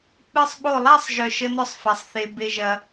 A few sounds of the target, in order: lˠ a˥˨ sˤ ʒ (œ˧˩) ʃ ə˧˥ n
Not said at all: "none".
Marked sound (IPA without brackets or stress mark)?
œ˧˩